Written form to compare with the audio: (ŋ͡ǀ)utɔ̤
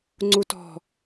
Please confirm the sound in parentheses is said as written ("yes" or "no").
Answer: yes